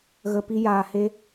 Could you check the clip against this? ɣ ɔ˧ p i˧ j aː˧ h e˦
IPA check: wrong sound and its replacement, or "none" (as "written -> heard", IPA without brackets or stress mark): ɔ˧ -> ə˧